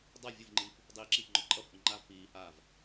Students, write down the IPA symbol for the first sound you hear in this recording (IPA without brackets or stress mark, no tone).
dˤ